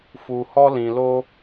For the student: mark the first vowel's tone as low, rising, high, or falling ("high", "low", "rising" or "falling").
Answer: low